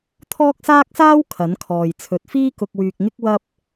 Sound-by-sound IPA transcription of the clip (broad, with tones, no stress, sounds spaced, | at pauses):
t̪ʰ ɔː˥ k̚ s aː˥ k̚ s aː˥ w kʰ ɐ˨˥ n kʰ ɔː˨ j t͡sʰ ɵ˨ t̚ f iː˥ k ʊ˧ k̚ w yː˧ k̚ ŋ ɪ˥ k̚ w ɐ˥ p̚